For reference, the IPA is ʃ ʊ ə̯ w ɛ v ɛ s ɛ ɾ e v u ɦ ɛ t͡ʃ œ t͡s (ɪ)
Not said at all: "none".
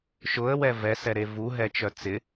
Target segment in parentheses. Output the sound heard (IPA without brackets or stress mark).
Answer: ɪ